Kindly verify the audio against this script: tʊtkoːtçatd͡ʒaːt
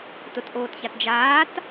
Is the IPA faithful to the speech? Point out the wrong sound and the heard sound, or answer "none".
k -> ʔ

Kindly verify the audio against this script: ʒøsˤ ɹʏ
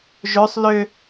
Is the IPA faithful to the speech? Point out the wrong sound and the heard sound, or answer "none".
ɹ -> l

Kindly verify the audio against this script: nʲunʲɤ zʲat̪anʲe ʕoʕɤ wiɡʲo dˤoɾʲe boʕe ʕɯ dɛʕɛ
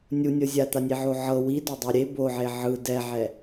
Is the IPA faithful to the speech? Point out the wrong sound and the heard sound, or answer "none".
ɡʲ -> d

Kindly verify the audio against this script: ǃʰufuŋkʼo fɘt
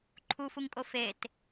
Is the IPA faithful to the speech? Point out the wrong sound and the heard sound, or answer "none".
ɘ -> e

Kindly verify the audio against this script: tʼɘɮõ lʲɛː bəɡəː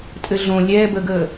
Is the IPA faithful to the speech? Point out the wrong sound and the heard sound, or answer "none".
none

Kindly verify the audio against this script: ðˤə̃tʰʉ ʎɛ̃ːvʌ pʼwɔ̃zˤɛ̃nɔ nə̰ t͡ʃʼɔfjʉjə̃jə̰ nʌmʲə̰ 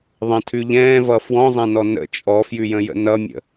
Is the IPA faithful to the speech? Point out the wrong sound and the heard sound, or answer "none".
pʼ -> f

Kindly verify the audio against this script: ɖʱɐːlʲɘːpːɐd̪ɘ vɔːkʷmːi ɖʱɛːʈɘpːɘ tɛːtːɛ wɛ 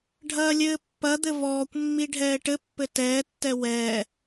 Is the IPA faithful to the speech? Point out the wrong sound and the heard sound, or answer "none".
none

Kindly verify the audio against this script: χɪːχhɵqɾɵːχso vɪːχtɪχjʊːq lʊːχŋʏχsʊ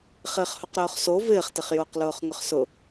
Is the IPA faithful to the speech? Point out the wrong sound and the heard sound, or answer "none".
none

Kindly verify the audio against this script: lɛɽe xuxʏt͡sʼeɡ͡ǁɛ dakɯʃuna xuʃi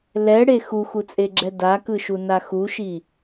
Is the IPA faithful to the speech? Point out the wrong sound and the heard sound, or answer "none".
ʏ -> u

